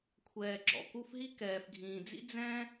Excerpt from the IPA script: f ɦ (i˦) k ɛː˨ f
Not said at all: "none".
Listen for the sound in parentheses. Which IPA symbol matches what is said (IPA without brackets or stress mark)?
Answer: i˦